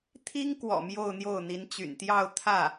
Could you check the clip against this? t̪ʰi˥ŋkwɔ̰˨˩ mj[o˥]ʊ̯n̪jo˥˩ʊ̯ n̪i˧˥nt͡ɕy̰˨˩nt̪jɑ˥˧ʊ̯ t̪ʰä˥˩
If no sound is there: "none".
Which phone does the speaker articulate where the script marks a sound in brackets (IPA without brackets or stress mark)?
o˥˧